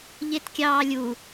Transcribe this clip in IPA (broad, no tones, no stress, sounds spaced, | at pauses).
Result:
ʎ e t kʲ ɑː lʲ u